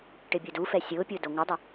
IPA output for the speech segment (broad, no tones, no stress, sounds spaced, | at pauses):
ʈ ɪ bʲ u d u f ɛ sʲ ʊː pʲ ʊː d o ŋʷ ɪ dˤ ɪ